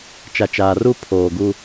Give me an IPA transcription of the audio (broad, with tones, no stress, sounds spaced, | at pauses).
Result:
t͡ʃ a˨ t͡ʃ aː˨ r u˦˨ pʰ oː˨ ɡ u˦